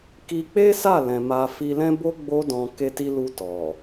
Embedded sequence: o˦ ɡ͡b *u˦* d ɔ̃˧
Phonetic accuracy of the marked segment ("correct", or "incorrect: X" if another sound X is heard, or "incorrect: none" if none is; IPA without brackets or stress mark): incorrect: o˦